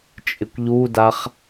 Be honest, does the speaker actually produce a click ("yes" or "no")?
no